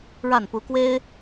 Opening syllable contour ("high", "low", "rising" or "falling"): falling